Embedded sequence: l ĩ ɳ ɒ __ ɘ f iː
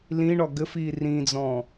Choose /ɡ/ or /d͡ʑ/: ɡ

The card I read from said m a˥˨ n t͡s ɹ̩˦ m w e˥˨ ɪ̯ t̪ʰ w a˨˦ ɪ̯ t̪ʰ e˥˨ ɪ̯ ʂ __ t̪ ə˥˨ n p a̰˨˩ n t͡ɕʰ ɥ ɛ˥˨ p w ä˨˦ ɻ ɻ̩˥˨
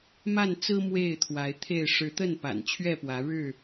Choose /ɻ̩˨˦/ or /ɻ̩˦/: ɻ̩˨˦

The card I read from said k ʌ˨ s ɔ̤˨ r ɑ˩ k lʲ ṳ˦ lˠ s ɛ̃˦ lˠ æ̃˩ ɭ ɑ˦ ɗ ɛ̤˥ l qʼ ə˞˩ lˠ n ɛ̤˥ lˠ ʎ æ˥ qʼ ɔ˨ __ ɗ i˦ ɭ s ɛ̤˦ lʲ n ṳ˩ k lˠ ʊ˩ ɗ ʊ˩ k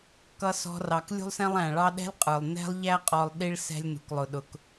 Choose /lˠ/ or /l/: lˠ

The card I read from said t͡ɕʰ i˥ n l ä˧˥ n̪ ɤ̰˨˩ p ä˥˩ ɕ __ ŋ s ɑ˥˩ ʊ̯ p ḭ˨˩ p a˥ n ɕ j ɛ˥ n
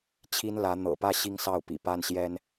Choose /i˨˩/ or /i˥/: i˥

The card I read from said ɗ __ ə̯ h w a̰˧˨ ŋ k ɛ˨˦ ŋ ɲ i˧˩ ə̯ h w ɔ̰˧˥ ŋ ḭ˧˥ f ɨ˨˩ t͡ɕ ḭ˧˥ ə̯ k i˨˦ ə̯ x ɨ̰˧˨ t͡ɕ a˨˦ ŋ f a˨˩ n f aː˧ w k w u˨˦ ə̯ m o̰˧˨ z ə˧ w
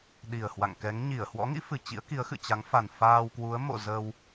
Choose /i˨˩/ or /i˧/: i˨˩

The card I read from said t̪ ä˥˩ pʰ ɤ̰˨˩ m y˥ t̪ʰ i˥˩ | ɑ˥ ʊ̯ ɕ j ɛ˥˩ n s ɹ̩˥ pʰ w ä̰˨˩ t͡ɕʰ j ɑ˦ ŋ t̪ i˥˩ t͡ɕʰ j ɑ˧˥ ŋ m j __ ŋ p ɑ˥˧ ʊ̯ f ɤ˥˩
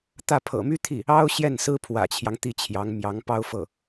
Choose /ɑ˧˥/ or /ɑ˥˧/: ɑ˧˥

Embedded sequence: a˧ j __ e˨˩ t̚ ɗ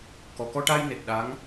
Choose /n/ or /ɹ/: n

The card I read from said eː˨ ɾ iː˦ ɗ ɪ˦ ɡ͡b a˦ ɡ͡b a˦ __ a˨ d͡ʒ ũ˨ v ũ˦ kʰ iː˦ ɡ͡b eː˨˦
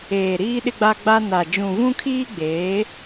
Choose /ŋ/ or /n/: n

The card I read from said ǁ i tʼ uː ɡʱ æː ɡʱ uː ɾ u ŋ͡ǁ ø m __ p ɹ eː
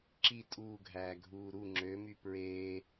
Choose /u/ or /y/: y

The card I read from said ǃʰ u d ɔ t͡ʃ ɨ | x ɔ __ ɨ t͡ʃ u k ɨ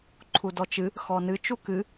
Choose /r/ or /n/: n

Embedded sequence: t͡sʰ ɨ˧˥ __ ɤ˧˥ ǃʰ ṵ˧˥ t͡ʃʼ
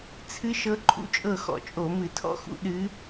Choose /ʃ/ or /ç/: ʃ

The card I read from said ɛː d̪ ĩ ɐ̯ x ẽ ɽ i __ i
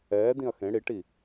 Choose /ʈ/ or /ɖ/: ʈ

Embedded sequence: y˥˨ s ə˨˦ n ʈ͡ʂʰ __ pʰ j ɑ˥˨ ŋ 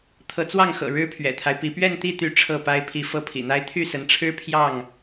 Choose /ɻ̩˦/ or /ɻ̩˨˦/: ɻ̩˦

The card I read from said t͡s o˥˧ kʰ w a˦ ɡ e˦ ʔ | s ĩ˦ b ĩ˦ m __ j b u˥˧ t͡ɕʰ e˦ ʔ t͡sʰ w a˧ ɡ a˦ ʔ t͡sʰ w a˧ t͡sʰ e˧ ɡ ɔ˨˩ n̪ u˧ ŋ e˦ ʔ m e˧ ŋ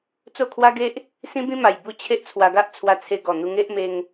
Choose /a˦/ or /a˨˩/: a˨˩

